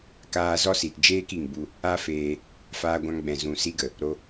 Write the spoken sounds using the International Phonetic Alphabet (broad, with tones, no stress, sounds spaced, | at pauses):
k aː˧ z ɔ˦ s i˨ t d͡ʒ eː˦ k i˨ ŋ b u˧ | a˦ f eː˧ | f aː˧ ɡʷ ã˧ ŋ ɡ͡b ɛ̃˨ z ũ˨ s i˧ ɡ ə˨ | ɾ o˧